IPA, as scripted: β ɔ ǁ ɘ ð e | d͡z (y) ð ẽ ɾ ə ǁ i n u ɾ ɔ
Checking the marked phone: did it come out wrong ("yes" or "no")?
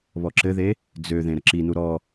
yes